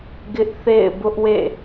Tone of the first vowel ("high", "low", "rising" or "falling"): high